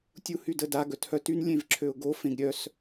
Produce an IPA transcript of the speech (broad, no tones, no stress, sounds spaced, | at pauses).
tʲ u h y d ə d a ɡ œ t h œ t y n lʲ ẽ v ǁʰ ø ʊ̯ ɡ o f ẽ ɡ ɾʲ œ s